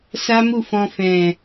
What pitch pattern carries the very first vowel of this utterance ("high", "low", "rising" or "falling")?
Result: high